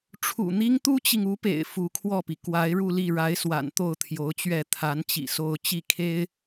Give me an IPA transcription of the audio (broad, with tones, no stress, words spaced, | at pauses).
ʈ͡ʂʰṵ˨˩n̪i˥ŋ t̪u˥t͡ɕi˨ŋu˧˥pḛ˨˩ɪ̯ fu˧˥kʰwɔ˥˩pi˩ kwa˧˥ɪ̯ɻu˥˧li˥˩ ɻa˧˥ɪ̯swa̰˨˩n t̪o˥˩ʊ̯t̪ʰjo˧˥ʊ̯t͡ɕɥɛ˥˩ t̪ʰa˧˥nt͡ɕḭ˨˩ so˥˧ʊ̯ t͡ɕi˥˩ kʰe˥ɪ̯